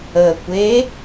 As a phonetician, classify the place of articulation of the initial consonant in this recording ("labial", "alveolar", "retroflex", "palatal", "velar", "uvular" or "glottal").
velar